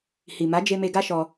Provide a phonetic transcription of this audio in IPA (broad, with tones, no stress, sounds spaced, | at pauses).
h i˨ m a˨˦ d͡ʒ e˧ m e˧ ɡ a˦ ʃ ɔ˧